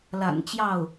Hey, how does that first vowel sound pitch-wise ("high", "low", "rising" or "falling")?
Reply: low